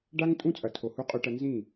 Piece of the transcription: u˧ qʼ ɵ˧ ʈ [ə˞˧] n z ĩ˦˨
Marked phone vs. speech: incorrect: ɐ˧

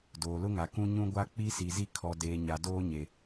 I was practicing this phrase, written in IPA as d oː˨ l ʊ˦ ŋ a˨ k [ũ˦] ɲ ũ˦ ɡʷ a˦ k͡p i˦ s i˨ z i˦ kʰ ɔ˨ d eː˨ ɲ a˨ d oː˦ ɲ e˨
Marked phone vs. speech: correct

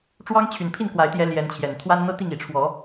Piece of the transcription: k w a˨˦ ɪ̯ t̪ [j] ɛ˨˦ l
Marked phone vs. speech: correct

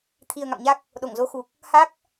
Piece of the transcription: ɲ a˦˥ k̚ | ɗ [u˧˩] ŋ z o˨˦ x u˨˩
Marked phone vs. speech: incorrect: o˧˩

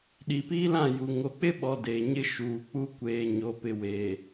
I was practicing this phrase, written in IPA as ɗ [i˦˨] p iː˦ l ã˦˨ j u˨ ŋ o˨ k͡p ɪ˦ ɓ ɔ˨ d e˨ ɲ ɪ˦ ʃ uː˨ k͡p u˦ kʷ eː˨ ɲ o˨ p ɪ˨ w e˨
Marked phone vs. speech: incorrect: i˨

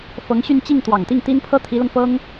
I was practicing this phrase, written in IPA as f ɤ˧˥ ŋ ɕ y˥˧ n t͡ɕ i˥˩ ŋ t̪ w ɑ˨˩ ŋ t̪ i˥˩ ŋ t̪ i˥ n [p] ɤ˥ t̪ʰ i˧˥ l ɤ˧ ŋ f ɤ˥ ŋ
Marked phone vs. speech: incorrect: pʰ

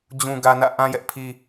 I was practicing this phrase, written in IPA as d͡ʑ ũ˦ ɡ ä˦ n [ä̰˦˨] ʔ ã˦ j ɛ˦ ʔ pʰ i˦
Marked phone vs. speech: correct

